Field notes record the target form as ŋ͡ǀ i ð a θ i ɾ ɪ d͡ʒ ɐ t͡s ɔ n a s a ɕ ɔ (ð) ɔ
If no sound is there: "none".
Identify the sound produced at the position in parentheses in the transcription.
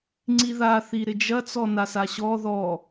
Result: ð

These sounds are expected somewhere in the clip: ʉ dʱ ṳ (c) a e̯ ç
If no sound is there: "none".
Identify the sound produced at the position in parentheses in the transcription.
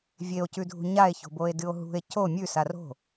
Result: ɲ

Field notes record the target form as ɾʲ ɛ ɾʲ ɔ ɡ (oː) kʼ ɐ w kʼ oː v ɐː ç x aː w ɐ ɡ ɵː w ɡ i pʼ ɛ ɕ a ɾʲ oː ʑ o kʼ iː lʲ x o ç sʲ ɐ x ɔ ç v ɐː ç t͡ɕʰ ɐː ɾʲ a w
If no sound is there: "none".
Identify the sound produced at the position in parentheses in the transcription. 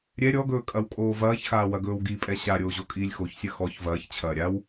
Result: ɵː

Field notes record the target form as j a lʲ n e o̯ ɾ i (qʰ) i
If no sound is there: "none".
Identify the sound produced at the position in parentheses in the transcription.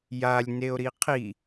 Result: qʰ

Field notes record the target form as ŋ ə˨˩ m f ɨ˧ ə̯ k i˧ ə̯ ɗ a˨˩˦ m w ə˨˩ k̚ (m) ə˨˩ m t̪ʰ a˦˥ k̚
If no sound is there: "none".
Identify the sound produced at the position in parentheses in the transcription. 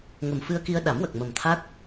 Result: m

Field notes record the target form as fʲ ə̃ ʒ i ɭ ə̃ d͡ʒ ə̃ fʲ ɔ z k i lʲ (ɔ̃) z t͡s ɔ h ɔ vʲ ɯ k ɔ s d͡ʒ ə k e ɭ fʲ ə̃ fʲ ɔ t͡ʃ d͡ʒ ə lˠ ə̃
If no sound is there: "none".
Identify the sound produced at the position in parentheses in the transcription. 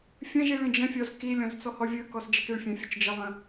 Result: ɔ̃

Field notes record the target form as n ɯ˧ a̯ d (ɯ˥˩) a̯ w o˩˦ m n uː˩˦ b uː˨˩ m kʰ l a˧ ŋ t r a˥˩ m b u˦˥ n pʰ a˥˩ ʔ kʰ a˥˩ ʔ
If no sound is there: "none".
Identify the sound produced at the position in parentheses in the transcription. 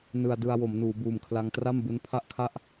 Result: ɯ˧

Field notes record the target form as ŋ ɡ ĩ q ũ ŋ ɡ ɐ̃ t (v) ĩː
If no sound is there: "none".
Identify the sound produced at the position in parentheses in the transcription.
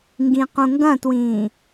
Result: w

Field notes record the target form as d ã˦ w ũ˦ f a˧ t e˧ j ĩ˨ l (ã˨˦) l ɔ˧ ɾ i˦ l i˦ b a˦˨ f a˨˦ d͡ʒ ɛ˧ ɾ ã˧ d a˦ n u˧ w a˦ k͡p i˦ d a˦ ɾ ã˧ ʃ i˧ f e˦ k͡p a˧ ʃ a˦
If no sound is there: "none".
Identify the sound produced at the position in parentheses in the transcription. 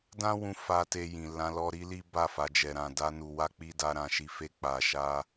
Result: ã˨˦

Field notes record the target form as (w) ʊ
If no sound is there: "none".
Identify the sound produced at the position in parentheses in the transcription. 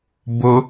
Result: b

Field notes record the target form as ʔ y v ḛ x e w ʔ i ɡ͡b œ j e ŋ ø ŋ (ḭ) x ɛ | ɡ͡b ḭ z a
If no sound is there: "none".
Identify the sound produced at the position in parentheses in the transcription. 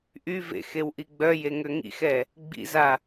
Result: ḭ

